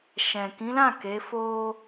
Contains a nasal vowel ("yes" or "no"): yes